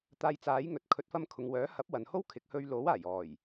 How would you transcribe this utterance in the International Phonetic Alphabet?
t̪ aː˧ j t͡s aː˨˥ j ŋ ɵ˨ t̚ kʰ ɵ˨˥ t̚ f ɐ˧ m kʰ ʊ˨ ŋ w œː˨˥ h ɐ˨˥ p̚ w ɐ˨ n h o˥ w kʰ ɪ˨˥ k̚ h ɵ˧ ɥ l o˨˥ w aː˨˩ j ɔː˨˩ j

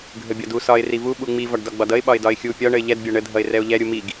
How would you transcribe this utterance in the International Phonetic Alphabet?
ɡʱ ə bʲ ɒ d u s ɒ ɪ̯ r i v u ɓ u ŋ͡m i v ɒ ɖ d ɒ ɡ͡b ɒ d ʌ ɪ̯ ɓ ɒ ɪ̯ d ɒ ɪ̯ xʲ u pʲ ɒ ɳ ə ɪ̯ ʎ ɛ d bʲ ɒ ɳ ə dʱ ʌ ɪ̯ r ɛ ʊ̯ ʎ ɛ ɾʲ u m i ɡ

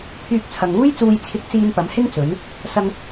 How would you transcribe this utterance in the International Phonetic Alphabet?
pʰ yː˧ k̚ t͡sʰ ɐ˨ ŋ uː˥ j t͡s uː˧ j t͡sʰ ɪ˧ k̚ t͡s iː˧ n p ɐ˨˧ m h ɪ˥ ŋ t͡s ɵ˨˧ n | s ɐ˧ ŋ

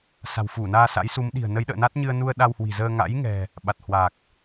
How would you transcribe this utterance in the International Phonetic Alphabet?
s a̤˨˩ w f u˧˩ n aː˧ s a̰˧˥ j s u˨˦ m ɗ i̤˨˩ ə̯ n ə˨˦ j ɗ ə̰ː˧˨ n a˦˥ t̚ ɲ ɨ˧ ə̯ n u˧ ə̯ ɗ a˧ w h w i̤˨˩ z əː˧ ŋ a̰˧˥ j ŋ ɛ̤˨˩ | ɓ a˨˩ t̚ h w aː˨˩ k̚

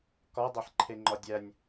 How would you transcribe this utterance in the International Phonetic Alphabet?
k ɒ dˤ e ħ ǃʰ e ŋ͡ǃ ɒ dʲ æ nʲ

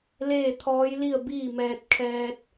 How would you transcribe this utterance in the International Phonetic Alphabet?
l eː˥˨ t̪ʰ ɔː˧˥ j l i˥˨ ə̯ b iː˥˨ m ɛː˧ t̚ kʰ ɛː˧ t̚

